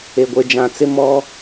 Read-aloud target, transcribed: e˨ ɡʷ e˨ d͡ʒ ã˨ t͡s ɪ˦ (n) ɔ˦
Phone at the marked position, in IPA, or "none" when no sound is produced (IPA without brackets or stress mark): m